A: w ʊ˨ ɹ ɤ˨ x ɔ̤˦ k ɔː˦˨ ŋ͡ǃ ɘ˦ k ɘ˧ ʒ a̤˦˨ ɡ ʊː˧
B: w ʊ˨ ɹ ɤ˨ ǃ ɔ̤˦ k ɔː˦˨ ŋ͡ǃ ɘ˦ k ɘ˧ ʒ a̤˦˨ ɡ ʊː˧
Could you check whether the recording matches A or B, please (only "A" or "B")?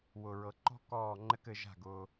B